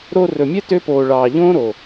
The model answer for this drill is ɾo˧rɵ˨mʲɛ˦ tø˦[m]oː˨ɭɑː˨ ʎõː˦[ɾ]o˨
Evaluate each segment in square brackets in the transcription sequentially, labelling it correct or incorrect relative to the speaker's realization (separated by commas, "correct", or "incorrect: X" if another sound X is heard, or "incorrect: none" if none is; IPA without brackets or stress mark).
incorrect: p, correct